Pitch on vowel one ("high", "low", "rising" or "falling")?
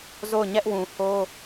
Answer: falling